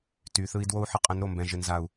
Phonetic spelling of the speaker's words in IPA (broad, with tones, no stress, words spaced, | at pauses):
ty˨˦θɯ˦i̯ dwo˦u̯ħə˧qʼə̃˨˦nɾo˨ mbɛ̃˨ʒɪ˨nza˨u̯